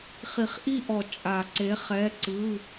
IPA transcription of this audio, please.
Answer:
χ i˨˩˦ χ ʔ i˦˨ ʔ ɔ˨˩˦ t͡ʃʼ a˨˩˦ ǀ e˨˥ χ ɛ˧˥˧ ǀ ɯ˧˥˧

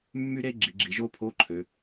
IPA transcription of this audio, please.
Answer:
mː y˥ ɾ e˥ ɡ͡ǁ i˩˧ ɡ͡ǁ i˩˧ ʒ o˥ pʰ o˧˥˧ ǃʰ ø˩˧

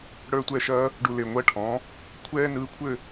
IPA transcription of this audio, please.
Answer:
ɽ ə˞˥˧ tʷ ɛ˥˩ ʃ ɐː˥ | ɖ u˧ l e˨˩ ŋʷ ɐː˥˧ ʈʰ ɔ̃˩˥ | kʷʰ ɛː˥ n ɯː˧ kʷʰ ɘ˥˧

